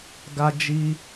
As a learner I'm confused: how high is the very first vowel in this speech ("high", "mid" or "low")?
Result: low